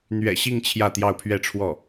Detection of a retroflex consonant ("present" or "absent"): present